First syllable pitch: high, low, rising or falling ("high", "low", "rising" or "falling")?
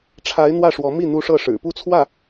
rising